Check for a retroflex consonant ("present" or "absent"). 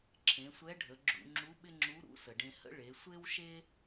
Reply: present